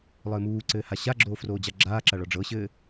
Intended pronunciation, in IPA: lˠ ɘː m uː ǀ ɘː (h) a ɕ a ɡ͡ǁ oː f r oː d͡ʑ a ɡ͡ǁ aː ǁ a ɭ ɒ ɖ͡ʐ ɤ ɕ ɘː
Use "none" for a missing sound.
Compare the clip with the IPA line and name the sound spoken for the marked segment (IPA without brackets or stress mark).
h